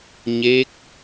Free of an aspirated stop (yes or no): yes